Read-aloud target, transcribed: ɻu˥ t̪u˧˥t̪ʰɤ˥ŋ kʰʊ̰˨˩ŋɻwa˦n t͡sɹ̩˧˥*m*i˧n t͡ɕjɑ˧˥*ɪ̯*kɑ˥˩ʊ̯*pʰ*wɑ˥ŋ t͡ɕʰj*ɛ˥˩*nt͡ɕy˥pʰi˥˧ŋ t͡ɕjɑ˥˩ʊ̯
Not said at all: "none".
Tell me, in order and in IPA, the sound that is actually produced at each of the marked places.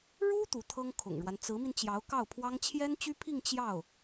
m, ʊ̯, pʰ, ɛ˥

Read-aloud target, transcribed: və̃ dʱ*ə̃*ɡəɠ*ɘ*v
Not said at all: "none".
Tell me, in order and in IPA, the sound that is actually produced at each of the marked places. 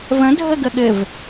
ə, ɘ

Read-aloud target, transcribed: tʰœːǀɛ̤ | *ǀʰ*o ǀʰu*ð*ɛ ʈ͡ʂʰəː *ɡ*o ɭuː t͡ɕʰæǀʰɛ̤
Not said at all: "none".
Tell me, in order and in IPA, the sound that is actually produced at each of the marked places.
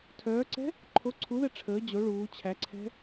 ǃʰ, ð, d͡ʑ

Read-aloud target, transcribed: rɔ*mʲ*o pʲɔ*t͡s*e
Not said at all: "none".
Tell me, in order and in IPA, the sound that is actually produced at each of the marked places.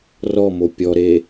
m, ɾ

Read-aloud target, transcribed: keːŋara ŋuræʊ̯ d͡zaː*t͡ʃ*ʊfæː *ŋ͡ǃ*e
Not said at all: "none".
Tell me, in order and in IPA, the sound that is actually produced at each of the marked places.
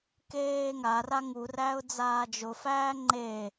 d͡ʒ, ŋ͡ǃ

